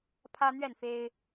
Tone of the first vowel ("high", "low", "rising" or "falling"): high